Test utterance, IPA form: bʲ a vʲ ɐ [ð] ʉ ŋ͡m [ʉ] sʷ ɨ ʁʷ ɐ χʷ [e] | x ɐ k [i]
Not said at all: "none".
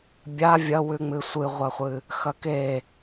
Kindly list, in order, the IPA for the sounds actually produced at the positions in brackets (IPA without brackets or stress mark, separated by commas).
w, ɨ, ɨ, e